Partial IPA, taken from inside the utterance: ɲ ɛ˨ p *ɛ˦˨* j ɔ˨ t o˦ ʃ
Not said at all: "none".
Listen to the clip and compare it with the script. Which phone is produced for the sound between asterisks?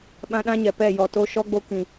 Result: ɛ˦˨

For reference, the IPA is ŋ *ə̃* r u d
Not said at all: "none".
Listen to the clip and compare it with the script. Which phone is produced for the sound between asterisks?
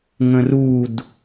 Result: ə̃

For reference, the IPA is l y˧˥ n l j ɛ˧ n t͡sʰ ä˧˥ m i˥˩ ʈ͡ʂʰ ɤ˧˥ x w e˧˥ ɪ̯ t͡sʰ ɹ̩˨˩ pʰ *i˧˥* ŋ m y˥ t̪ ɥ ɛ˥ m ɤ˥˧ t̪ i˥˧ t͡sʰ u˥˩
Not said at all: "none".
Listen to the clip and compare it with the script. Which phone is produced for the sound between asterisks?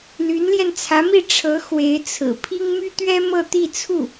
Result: i˥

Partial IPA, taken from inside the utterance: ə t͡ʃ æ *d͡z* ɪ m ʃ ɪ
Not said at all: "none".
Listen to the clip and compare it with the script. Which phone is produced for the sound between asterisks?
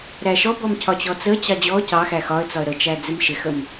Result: d͡z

